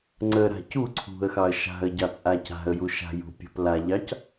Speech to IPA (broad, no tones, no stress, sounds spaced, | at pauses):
ŋ͡ǀ ə ɾ a̤ c u ǀʰ ṳ ə̯ x ɑ ə̯ ʃ a̤ ə̯ ɟ ɑ t͡sʼ a c a̤ ə̯ j u ʃ a̤ j ṳ pʲ ə̤ p l a ʎ ɑ c